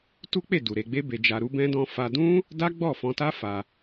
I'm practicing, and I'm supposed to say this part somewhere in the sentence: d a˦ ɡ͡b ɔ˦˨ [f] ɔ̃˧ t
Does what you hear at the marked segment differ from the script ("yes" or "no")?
no